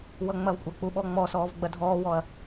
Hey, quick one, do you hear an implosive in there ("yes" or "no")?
yes